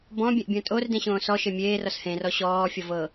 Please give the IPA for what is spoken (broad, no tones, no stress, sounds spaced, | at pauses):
b ɔ̃ bʲ ẽ ʔ bʲ õ tʼ o r d ẽ ɕ õː s ɔ ʃ e mʲ eː r ɔ s h ẽ r ɔ ɕ ɔː fʲ ɔ v ɤ